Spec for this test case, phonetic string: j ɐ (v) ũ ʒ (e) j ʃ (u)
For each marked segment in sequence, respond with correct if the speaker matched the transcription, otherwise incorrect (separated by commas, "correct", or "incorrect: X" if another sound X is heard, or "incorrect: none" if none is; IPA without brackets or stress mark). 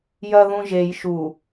incorrect: ð, correct, correct